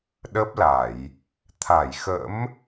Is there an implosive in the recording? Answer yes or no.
yes